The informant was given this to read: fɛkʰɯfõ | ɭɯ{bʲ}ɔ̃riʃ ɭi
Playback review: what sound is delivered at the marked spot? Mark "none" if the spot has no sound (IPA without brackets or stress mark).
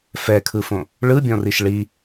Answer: bʲ